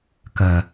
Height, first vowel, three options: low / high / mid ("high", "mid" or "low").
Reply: low